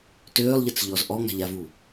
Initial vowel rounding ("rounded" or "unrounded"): rounded